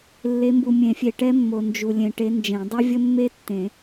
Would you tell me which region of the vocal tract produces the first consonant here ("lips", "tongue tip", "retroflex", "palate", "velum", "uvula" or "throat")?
tongue tip